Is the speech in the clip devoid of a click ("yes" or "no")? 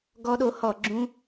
no